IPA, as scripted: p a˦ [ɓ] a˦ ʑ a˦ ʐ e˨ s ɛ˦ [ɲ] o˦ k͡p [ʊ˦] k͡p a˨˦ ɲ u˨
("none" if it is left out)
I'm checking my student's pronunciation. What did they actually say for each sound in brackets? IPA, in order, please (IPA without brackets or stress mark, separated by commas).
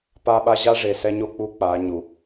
ɓ, ɲ, u˦